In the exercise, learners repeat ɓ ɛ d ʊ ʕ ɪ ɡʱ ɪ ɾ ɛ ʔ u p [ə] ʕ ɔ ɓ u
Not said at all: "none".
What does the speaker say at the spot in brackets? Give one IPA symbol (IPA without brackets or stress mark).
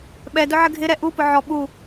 ʊ